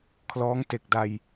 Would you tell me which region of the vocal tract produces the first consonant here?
velum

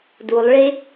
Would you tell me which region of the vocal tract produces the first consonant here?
tongue tip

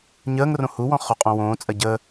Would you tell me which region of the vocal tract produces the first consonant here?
palate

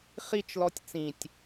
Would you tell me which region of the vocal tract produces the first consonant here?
uvula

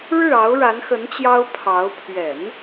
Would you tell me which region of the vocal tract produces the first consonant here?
retroflex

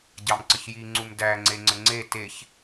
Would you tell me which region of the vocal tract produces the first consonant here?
palate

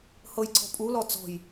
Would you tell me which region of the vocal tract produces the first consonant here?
throat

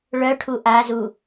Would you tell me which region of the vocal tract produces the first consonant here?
retroflex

